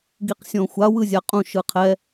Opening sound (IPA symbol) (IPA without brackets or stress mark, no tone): ɡ